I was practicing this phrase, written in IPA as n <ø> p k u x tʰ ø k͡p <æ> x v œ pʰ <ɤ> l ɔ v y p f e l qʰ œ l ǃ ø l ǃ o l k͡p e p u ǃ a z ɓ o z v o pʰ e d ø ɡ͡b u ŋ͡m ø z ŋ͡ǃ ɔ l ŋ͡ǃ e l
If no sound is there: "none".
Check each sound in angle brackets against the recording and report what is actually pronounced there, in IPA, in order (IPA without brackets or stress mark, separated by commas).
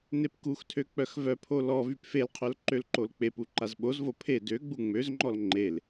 e, œ, o